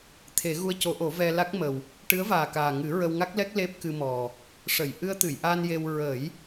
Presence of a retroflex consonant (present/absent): present